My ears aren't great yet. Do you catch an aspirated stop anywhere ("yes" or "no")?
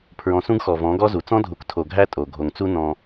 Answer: yes